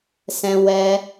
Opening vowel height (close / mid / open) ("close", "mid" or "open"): mid